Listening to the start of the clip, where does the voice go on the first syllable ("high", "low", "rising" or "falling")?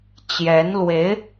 rising